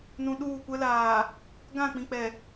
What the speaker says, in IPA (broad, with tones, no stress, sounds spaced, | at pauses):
n ũ˨ ɗ uː˦˨ kʷ ɛ˦ l aː˨ | ɡ ã˦˨ k͡p ĩ˨ k͡p ɛ˨